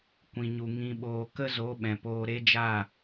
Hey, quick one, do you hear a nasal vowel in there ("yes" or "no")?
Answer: yes